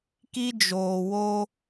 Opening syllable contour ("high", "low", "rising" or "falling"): high